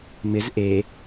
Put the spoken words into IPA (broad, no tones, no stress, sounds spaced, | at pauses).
m ɪ z ʔ e